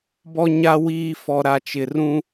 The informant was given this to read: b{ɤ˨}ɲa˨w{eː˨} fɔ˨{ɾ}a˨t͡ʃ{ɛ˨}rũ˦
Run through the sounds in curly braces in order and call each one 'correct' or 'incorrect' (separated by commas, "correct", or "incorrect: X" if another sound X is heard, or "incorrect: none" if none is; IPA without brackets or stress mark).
incorrect: ɔ˨, incorrect: iː˨, correct, incorrect: ɪ˨